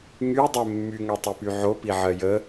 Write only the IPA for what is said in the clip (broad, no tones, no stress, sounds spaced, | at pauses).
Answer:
ŋ y dˤ ɛ mː y ŋ ɜ tˤ y p y ʕ o p i ʕ ɜ j ə